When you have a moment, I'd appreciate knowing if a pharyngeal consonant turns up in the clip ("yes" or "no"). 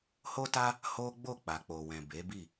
no